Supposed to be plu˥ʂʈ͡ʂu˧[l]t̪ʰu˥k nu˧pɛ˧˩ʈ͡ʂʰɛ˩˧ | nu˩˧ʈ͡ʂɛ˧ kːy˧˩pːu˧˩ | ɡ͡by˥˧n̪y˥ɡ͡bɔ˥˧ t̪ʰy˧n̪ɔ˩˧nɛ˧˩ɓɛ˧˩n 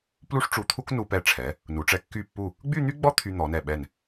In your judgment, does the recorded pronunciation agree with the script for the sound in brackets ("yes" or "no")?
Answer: no